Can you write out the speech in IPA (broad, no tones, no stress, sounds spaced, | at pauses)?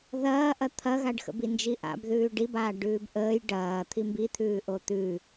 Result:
ð ɐː ʔ ɐ t̪ʰ ɐ ɣ a ɖ x ə̰ b i n d͡ʒ i ʔ a̰ b ð ʉː ɖ i b aː ɖ ʉː b ʔ əː j ɖ ɐː t̪ʰ i m b i t̪ʰ ʉː ʔ o t̪ ʉ